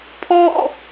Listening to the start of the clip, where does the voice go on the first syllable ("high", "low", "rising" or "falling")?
falling